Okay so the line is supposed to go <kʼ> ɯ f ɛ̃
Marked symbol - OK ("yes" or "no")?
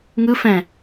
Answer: no